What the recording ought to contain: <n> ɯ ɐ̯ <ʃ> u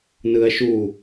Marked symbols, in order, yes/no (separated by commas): yes, yes